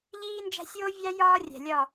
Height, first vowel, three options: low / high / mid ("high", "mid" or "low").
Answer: high